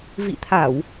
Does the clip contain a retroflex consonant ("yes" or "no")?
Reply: no